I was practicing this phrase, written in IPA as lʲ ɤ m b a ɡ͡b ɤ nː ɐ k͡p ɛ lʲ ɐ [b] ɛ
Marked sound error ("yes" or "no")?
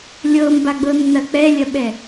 yes